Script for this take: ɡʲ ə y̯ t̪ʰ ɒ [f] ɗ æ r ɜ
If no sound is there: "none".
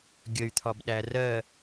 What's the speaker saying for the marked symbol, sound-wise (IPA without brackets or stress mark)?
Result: b